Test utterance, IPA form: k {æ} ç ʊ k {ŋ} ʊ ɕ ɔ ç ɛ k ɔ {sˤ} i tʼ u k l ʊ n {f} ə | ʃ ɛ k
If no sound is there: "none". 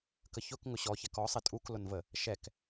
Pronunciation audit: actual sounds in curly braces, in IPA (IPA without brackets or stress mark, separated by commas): ə, ŋ, sˤ, v